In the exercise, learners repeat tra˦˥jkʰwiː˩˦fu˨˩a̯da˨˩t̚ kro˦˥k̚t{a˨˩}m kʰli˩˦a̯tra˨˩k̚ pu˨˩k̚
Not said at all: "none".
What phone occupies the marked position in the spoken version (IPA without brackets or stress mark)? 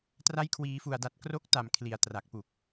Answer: a˨˩